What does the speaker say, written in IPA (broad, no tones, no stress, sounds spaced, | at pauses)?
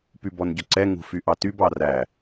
p y b ɔ n ɟ ɵ ǀ ɛ ŋ ṳ f y ʔ ɑ t y b ɑ r æ